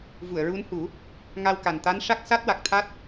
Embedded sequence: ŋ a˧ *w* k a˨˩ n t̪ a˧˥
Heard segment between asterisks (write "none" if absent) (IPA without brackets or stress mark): w